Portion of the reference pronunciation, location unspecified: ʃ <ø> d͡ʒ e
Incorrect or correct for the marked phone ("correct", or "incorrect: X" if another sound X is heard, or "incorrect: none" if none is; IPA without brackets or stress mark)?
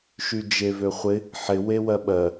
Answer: incorrect: y